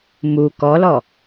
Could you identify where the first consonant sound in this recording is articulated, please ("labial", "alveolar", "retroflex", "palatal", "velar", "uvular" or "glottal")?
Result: labial